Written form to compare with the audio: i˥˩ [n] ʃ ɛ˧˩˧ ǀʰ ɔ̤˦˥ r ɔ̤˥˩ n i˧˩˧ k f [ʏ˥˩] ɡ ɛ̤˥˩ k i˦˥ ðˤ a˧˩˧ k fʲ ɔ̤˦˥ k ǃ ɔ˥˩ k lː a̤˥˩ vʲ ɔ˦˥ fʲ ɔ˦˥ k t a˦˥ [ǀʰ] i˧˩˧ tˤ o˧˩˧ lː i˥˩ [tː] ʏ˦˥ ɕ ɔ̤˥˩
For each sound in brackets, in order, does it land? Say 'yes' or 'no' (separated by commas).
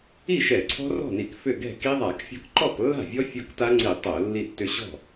no, yes, no, yes